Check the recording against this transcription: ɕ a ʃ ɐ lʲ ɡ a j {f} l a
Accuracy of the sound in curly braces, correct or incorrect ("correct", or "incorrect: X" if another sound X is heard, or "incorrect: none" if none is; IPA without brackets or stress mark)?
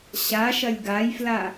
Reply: correct